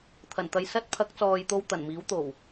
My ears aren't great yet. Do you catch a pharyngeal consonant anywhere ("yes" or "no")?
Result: no